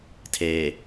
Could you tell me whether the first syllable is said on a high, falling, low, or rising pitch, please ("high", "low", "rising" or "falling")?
low